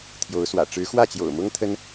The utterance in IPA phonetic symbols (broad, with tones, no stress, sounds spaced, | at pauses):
t̪ʰ j o˧˥ ʊ̯ s w ä̰˨˩ ʈ͡ʂ ɻ̩˧˥ x w ä˥˩ t͡ɕ j o̰˨˩ ʊ̯ m ʊ˥ ŋ t̪ʰ ə˥ n